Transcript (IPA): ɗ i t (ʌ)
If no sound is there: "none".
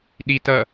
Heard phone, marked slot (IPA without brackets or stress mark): ʌ